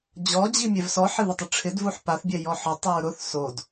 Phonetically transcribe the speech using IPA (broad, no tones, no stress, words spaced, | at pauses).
d͡ʑɔd͡ʑi mʲɛvsɔħɪ ðɪtˤʊʈ͡ʂʰɪdvuħ paθ bʲɛjɔħɔ tˤɛɹɾʊθ sod